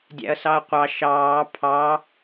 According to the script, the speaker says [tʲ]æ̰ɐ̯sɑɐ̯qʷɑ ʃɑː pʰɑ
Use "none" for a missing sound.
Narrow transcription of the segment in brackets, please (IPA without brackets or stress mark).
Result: dʲ